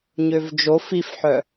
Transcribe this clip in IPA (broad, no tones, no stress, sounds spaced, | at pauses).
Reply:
ɲ ø v d͡ʒ o f i f ħ œ